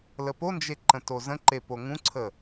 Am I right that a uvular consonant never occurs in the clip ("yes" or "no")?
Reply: yes